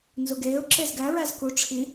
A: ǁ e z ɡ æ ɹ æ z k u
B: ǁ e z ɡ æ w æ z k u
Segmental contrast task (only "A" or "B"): A